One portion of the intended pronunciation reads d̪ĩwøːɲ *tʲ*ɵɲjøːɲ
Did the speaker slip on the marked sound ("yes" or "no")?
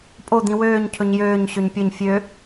yes